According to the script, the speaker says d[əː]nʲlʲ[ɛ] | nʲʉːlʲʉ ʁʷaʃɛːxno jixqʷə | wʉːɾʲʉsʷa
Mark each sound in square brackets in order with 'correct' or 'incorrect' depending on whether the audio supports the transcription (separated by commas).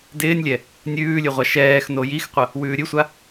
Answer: incorrect, correct